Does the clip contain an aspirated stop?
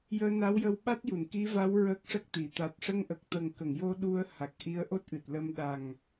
no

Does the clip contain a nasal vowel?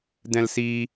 yes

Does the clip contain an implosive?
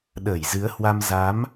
yes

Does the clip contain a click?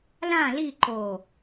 yes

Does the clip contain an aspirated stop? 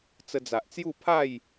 yes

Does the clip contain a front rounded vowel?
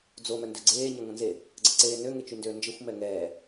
yes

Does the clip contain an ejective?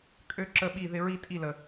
yes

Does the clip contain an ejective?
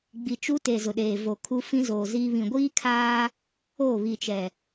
no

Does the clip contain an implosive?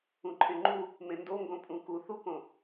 no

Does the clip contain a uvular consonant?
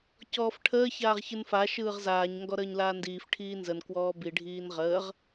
yes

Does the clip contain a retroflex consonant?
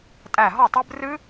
no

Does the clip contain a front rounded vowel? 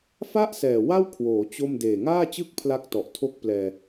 no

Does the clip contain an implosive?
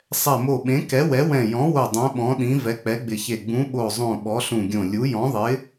yes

